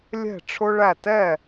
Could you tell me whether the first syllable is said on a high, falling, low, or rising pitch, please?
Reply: falling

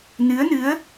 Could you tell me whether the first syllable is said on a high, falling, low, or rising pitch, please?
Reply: rising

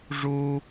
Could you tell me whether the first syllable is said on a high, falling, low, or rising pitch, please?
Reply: high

